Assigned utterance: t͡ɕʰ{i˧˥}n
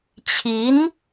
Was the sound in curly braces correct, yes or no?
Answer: yes